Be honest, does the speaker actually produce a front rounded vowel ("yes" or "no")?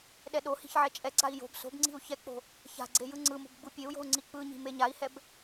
no